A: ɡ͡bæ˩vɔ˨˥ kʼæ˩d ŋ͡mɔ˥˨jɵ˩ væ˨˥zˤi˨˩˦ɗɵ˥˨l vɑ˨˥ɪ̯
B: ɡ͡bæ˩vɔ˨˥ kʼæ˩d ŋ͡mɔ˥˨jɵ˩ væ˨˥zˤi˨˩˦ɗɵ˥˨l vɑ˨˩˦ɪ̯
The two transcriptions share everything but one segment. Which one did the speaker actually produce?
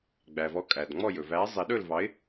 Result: A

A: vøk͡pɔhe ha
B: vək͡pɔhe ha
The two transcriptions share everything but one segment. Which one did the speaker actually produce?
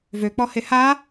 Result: A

